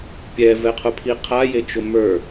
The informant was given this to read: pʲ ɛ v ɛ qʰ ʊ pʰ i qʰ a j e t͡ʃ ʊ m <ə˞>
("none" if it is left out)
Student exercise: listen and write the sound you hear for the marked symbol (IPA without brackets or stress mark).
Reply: ə˞